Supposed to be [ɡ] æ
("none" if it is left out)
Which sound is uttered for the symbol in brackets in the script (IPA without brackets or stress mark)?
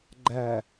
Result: ɡ͡ǃ